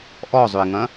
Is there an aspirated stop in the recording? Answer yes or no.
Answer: no